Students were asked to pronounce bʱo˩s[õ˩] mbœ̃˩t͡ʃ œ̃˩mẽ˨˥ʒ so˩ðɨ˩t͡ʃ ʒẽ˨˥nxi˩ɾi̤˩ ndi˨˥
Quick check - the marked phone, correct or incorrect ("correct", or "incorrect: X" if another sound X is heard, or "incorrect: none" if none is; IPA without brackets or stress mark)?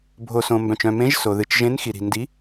correct